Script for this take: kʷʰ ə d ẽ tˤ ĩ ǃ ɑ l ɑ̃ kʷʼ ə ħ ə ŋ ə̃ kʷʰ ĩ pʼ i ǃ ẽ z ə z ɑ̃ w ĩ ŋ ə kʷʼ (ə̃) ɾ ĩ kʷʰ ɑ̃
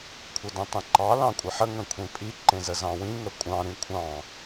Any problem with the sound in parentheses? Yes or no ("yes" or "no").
yes